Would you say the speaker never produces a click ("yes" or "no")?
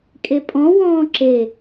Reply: no